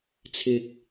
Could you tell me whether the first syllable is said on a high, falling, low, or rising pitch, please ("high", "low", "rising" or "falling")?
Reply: rising